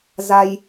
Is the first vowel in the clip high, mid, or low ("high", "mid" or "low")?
low